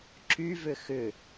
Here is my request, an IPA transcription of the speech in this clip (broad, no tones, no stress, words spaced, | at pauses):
ǁyvʏ xʏ